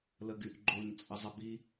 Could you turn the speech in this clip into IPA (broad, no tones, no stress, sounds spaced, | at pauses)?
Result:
l ə ɡ y ʔ ɡ͡ǃ o ɲ t͡sʼ ə zˤ ə b i